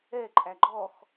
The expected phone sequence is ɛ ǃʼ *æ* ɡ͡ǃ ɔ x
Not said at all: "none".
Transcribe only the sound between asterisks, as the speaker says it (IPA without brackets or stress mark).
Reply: æ